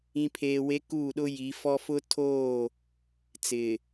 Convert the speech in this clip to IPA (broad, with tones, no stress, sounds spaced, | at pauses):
ĩ˨ pʰ eː˨ w e˨˦ k uː˦˨ ɗ ʊ˦ j i˨˦ f ɔ˦ f ʊ˦ tʰ oː˦˨ | t͡s ɪ˨